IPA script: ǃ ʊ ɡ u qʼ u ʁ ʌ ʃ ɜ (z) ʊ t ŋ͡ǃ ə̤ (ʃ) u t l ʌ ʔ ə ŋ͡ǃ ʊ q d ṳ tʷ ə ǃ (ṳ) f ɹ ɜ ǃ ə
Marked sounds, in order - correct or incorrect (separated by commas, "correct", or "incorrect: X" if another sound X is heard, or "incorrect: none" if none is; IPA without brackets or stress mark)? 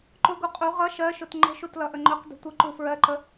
incorrect: ʃ, correct, incorrect: u